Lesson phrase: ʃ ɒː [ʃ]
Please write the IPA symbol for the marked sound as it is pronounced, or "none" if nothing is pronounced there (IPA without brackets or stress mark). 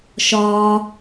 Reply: none